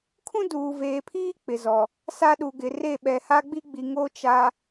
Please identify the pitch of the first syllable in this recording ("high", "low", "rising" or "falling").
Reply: high